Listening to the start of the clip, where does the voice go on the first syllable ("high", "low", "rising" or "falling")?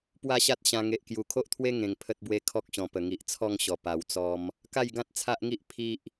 falling